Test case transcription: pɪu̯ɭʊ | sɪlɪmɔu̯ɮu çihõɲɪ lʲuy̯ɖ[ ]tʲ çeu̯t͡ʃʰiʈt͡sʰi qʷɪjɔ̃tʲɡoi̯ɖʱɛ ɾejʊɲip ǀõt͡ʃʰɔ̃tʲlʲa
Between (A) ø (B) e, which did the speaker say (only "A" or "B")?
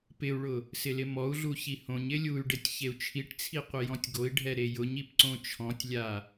B